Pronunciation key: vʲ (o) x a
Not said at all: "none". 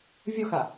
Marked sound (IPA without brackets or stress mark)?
o